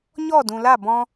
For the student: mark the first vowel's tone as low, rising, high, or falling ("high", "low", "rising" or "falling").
falling